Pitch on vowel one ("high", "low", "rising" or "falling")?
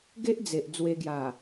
high